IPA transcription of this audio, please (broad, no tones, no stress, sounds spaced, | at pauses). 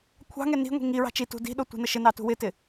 kʷʰ ɑ̤ ŋ ɛ n i̤ ŋʷ i̤ ŋ i ɹ ɑ̤ t͡ʃ i t ṳ d i̤ ɗ o tʷ i̤ n ə ʃ ɪ n ɑ t ṳ w ɪ t ɪ